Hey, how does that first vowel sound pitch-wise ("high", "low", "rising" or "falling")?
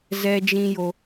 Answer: high